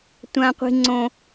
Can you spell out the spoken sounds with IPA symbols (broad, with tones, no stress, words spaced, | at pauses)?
tʷã˦qʷi̤˦ŋ͡ǀõ˦